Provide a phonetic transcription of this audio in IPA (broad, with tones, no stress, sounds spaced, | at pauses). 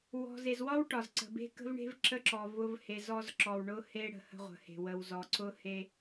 w ɔ̤˨ z e˨ z w ɒ˦ w ʈ ɒ˨ z ǀ ə̤˨ b e̤˦ k ə̤˦ v ɳ e̤˦ v ǁ ə˦ ǁ ɔ˨ v ʊ˦ v h e˨ z ɔ˦ z ǁ ɔ˨ w ɳ ʊ˦ h e˦ ɽ ə̤˨ h ə̤˦ ʁʷ ə̤˨ h e̤˨ w ə˨ w z ɔ˨ ǀ ʊ˦ h e˦